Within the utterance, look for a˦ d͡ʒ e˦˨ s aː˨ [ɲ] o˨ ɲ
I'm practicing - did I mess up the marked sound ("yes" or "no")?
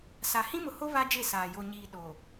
yes